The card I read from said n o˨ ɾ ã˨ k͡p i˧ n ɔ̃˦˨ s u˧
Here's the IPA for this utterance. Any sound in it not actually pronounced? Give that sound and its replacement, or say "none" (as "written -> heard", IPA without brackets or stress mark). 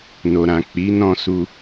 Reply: i˧ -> i˨˦